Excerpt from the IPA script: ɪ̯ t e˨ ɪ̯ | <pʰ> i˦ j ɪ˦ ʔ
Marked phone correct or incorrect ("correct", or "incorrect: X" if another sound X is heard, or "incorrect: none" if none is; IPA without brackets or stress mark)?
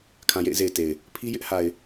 correct